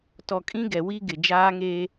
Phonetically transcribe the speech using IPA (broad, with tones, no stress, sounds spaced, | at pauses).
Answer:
t ɔ˨ kʼ ĩ˦ ɡ ɛ˨ w i˦ ɡ ɪ˨ d͡ʒ aː˦ ŋ eː˦